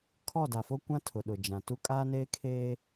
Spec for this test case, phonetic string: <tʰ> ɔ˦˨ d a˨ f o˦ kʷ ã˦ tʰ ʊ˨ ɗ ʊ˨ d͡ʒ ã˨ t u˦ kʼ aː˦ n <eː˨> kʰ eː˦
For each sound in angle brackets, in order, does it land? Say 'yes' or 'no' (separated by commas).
no, no